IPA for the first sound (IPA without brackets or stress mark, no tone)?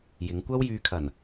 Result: j